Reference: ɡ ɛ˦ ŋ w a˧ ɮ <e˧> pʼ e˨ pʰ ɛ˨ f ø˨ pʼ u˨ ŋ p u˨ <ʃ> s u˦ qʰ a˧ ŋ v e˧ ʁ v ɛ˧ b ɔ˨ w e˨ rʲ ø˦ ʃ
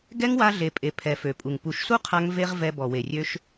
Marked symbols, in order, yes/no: no, yes

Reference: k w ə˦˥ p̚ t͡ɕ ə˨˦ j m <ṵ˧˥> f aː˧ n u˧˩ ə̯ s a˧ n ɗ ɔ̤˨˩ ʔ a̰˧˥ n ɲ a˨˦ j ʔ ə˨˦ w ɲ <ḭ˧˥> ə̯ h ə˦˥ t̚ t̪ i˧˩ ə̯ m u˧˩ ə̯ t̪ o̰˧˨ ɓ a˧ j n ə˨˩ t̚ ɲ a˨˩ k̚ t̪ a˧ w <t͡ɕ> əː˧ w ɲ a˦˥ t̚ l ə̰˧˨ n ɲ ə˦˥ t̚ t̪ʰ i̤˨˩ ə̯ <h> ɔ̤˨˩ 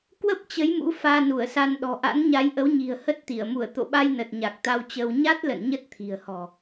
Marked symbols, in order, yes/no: yes, no, yes, yes

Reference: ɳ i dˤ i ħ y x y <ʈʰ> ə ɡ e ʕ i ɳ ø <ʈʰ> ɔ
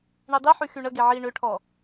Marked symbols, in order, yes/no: no, yes

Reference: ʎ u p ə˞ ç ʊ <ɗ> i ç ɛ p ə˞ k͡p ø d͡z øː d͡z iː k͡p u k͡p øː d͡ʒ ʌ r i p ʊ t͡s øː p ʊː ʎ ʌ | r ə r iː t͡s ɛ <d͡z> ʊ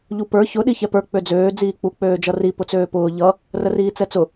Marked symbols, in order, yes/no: yes, no

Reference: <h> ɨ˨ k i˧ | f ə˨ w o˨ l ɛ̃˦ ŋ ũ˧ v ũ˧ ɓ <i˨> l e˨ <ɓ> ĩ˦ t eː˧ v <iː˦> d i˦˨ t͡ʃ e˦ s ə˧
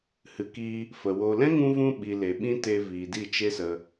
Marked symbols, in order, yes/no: yes, yes, yes, no

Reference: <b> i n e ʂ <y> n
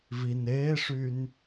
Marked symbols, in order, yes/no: no, yes

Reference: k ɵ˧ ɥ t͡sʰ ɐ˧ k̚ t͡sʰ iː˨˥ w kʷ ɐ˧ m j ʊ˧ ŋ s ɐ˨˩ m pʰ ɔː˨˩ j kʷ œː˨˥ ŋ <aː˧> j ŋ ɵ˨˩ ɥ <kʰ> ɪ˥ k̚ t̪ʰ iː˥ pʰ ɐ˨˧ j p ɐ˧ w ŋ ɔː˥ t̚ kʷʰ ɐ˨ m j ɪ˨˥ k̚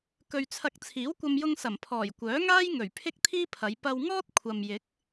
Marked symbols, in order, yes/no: no, no

